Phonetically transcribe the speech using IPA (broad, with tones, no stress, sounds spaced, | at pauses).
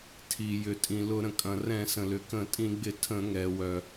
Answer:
tʰ i˩ j ʏ˩ tʼ ĩ˩ l ʊ˧˩˧ ɾ ə̃˩ kʼ ɐ̃˩ r ɛ̃˧˩˧ s ə̃˩ l ʏ˩ k ə̃˧˩˧ tʼ ĩ˧˩˧ ɡ͡b ɪ˧˩˧ tʰ ə̃˧˩˧ ŋ ɛ˩ w œ˩